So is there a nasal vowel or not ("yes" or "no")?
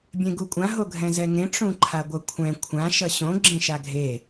yes